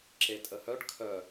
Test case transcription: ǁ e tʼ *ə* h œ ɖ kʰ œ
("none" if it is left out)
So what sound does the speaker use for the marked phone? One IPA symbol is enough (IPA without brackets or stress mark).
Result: ə